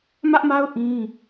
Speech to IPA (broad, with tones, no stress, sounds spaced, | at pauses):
m ä˦ ʔ m a˦ ʊ̯ ʔ ĩ˦